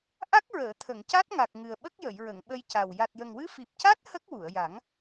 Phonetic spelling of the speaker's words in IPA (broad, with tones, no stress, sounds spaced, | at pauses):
ʔ a˦˥ k̚ ɹ əː˨˩˨ t̪ʰ ə˨˩˨ ŋ c a˦˥ t̚ ŋ a˨˩ k̚ ŋ ɨ˨˩ ə̯ ɓ ə˦˥ k̚ j ə˨˩˨ j ɹ ə˨˩˨ ŋ ɓ ə˧ j c a˨˩ w j a˨˩ t̚ j ə˨˩ ŋ w ɨ˧˥ f i˨˩ p̚ c a˦˥ t̚ h ə˦˥ k̚ w u˨˩˨ ə̯ j a˨˩˦ ŋ